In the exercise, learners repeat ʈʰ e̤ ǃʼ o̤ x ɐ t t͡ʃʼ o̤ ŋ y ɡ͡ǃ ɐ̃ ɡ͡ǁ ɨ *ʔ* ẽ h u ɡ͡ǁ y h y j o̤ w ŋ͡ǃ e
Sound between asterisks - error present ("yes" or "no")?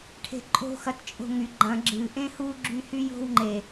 no